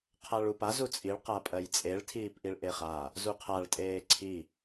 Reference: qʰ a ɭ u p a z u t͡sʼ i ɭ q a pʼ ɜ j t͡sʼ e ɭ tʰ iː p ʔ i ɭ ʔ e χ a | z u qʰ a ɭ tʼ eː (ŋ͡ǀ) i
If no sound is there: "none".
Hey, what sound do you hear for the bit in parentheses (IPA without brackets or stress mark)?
ǀʰ